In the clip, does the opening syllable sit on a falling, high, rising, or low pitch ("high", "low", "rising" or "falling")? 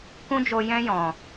high